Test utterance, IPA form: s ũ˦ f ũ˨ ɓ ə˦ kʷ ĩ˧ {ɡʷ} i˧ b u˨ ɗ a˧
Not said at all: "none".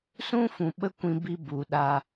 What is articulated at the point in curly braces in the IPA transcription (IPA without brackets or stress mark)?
b